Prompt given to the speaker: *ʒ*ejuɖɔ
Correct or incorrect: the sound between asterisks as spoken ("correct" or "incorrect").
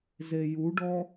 incorrect